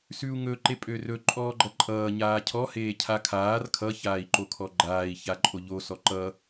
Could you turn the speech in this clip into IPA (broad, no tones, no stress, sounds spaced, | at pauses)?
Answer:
s ʉ u̯ ŋ ɵ ǃ e pʼ ø r ɵ ǃʼ ɔː ɡ͡ǃ ʌ ǃʼ ʌː ɲ aː cʰ ɔ h eː cʰ a kʰ aː r kʰ ʌ ç aː i̯ ǃ o kʰ ɔ ɡ͡ǃ aː i̯ ç a ǃʼ o ʎ o s ɔ ǃ ʌ